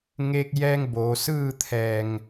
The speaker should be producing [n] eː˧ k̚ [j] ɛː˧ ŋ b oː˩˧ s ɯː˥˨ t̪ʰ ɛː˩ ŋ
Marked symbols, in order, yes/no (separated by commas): no, yes